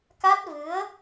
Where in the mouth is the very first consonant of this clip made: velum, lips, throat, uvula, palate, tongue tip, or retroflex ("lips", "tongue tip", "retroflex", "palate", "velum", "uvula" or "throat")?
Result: velum